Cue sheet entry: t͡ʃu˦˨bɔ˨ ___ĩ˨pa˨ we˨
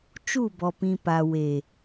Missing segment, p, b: p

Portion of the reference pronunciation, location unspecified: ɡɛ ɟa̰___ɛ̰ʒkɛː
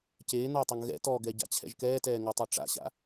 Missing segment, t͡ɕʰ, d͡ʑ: t͡ɕʰ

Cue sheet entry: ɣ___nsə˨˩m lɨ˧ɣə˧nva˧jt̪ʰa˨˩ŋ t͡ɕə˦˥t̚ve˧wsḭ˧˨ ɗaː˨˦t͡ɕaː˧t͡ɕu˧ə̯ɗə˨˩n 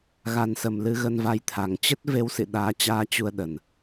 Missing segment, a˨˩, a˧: a˨˩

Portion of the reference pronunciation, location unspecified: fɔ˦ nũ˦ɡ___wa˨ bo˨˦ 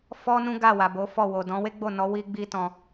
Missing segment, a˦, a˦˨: a˦˨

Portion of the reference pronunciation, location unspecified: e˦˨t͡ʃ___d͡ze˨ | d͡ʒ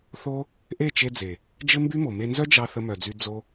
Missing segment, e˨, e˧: e˧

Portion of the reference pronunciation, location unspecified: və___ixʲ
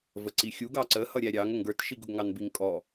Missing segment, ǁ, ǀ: ǀ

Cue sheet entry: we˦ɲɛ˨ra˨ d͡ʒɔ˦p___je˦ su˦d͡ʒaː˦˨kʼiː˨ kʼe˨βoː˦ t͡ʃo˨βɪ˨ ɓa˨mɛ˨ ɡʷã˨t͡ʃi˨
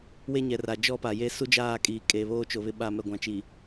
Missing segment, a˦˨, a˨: a˨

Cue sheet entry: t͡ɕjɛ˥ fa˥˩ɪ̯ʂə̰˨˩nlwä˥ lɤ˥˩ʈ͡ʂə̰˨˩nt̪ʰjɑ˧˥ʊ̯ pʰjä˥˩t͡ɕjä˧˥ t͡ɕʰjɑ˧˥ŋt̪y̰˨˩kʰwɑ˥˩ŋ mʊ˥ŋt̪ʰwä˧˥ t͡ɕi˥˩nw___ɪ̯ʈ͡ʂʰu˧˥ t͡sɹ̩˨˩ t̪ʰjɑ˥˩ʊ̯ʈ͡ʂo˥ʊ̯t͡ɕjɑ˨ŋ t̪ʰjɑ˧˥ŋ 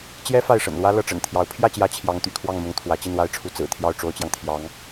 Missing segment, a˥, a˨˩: a˥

